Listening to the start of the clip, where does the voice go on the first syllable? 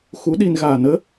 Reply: rising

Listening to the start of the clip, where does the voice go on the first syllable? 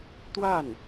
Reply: falling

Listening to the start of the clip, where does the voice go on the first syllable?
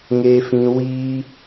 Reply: high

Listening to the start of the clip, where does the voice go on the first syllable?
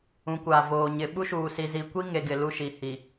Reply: rising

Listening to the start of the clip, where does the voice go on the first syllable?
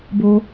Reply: low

